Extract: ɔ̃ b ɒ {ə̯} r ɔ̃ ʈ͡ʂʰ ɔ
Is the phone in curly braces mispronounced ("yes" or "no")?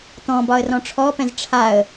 no